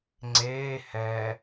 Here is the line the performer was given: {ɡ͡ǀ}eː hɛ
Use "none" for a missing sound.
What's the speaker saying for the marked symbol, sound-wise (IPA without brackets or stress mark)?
ŋ͡ǀ